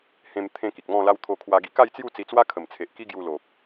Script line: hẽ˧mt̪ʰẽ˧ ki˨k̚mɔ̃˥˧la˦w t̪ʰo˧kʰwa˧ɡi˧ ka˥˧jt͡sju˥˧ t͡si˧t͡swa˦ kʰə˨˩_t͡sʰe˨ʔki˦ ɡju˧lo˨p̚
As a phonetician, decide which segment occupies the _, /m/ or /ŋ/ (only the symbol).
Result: m